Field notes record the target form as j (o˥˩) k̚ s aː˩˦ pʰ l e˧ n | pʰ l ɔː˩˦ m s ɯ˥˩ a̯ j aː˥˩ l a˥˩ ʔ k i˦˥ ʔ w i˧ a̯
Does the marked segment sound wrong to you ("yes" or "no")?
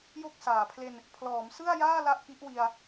no